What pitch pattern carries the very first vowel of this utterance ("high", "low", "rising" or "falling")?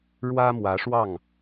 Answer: high